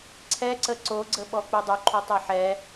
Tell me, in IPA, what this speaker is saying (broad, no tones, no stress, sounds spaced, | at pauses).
ǀʰ ɛ ǀ ə ǀ o ɡ͡ǀ ə ɓ ɔ k͡p u dˤ u ǃʰ o tˤ ɛ ħ ɛ